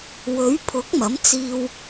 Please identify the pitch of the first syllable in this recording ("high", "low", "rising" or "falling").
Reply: rising